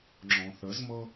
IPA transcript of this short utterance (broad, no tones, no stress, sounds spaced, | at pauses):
ŋ͡ǁ ɔ̃ θ ə z m ɤ